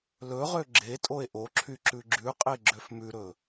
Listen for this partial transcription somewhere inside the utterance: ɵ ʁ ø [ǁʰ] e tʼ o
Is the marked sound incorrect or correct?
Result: incorrect